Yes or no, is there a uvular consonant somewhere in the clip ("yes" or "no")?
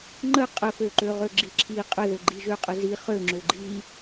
yes